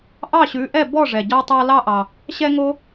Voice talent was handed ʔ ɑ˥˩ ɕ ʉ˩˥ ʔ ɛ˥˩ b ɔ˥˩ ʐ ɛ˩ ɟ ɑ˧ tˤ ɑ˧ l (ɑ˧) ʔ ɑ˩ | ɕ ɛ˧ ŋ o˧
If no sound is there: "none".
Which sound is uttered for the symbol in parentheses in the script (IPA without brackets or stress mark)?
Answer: ɑ˧